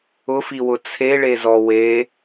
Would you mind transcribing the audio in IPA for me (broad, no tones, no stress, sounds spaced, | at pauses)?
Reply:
ʊ f i w ʊ t͡sʰ e ɭ e z ɔ w e